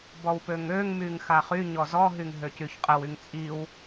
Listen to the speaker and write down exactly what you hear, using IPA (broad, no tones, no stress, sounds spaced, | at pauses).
b ɔ w p ø ŋ ø ŋ m y ŋ x a χ y ɲ ɔ z ɔ ɦ y ŋ ɦ ø c y ç qʼ ə w y ŋ t͡sʼ i w